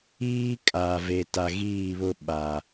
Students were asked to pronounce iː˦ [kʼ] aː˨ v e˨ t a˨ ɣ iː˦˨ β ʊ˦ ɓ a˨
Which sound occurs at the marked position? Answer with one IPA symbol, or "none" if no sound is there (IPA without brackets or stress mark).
kʼ